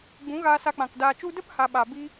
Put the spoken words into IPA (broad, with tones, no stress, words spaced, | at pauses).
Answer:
ɡ͡bũ˨˦ɣaː˧sa˧k͡pã˨k daː˨t͡ʃu˧də˦p ha˧ ɓa˨bi˦